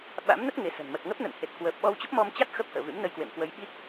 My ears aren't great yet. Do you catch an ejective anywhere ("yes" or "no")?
no